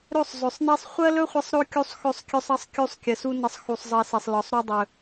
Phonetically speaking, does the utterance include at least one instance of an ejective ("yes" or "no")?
no